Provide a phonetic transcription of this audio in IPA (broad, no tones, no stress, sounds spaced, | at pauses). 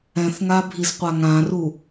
ɛ̃ θ ŋ a bʱ i z qʷ a ŋ ã r u